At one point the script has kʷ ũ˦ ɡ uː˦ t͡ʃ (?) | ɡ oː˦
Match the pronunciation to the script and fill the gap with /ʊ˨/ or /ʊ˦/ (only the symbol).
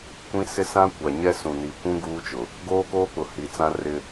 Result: ʊ˨